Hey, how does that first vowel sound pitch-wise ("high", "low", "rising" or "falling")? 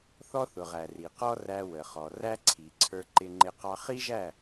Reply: high